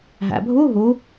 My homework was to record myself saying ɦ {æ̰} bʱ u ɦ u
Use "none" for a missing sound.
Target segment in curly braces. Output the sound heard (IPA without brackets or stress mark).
æ̰